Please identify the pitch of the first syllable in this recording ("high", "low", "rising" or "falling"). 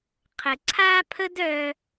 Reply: low